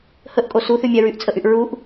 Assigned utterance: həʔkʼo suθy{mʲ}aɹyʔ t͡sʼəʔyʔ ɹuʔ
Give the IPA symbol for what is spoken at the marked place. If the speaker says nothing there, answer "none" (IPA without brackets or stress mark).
mʲ